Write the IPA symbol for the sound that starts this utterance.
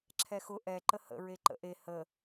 ǁʰ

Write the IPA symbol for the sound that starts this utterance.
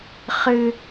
χ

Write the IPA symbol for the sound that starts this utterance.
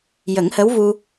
j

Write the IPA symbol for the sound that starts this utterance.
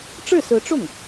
ʈ͡ʂ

